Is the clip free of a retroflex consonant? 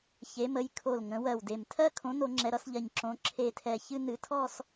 yes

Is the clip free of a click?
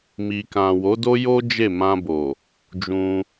yes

